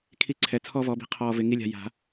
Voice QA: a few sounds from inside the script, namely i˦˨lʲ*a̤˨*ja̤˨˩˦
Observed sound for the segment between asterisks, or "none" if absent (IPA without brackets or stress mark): a̤˨